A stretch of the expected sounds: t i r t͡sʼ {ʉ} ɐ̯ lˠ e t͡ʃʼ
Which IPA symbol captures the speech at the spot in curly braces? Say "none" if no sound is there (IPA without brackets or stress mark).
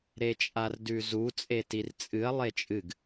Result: ɨ